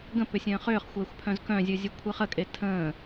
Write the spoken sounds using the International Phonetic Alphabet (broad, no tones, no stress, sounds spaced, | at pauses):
ɡ ə̃ p ʏ sʲ ə̃ː χ ʏː χ xʷ ɛː xʷ pʰ œ̃ z k œ̃ zʲ u zʲ u kʷʰ i χ ə kʼ e tʰ ə̃ː